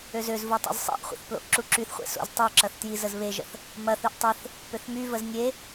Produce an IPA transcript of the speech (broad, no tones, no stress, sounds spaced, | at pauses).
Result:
ø z ø z v u tˤ o̰ z sˤ ḛ ʔ χʷ ə̰ θ p l o̰ ʔ ǁ u ǁ y θ χʷ ḛ s o̰ z tˤ y ǁ ɐ θ t j i z ə z β e ʒ ə̰ θ | m ɐ θ y ʔ tˤ e θ | p ø θ m y v ə z nʲ e